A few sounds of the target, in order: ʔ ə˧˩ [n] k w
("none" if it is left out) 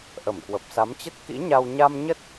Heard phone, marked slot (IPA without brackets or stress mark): m